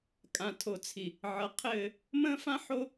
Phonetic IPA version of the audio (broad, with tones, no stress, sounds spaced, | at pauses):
kʼ ã˨ tʰ o˨ t͡sʰ i˨ | ʕ ʌ˨ qʰ ɘː˦˨ | m ə̃ː˦ f ã˦ ħ o˦